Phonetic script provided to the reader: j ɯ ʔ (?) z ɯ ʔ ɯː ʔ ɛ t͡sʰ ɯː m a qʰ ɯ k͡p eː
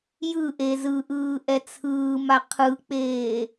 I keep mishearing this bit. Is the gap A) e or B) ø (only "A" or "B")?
A